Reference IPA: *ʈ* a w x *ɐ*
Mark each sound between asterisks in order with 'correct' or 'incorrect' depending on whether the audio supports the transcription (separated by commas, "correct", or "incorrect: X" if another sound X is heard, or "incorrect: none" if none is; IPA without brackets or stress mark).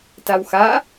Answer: incorrect: t, incorrect: a